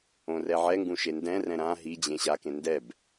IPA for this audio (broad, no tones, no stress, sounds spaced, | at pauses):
õ r ɛ ʕ ɛ ŋ ɡ ũ ʃ e n d ɛ̃ r ɛ̃ ɾ ã ɦ i d͡ʑ ẽ ɕ a k ẽ n d ɛ b